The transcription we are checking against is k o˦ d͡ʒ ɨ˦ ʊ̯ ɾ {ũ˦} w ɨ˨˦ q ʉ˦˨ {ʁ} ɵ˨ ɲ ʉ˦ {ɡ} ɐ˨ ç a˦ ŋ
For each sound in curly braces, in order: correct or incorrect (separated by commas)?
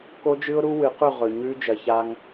incorrect, correct, incorrect